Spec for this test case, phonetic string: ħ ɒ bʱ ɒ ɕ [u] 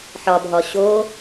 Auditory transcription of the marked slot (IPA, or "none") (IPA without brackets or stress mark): o